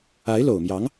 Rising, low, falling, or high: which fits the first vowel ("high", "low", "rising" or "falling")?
rising